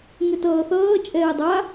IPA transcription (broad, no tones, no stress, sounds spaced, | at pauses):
ŋ ʏ t ʌː θ ʌː t͡ʃʼ ɛː dˤ a